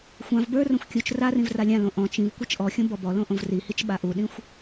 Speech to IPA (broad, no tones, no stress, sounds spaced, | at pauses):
xʷ ã v b ə˞ r õ xʷ kʲ u t͡ʃ r a r ĩ v r a lʲ ã l õ ʔ ɔ̃ t͡ʃ ĩ v kʷ i t͡ʃ ʔ ɔ xʲ õ b ɔ b ɔ l õ ʔ õ v r i h i t͡ʃ ɓ a ʔ u ɗ ĩ xʷ